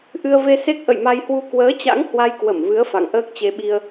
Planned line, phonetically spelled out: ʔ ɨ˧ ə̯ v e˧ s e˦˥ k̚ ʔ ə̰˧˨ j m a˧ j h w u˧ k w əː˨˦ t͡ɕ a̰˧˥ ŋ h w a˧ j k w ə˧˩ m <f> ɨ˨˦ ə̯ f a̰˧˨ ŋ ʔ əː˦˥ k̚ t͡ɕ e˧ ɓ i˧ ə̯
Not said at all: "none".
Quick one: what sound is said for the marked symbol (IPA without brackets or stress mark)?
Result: v